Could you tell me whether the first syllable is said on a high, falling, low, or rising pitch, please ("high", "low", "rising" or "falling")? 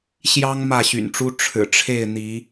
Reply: high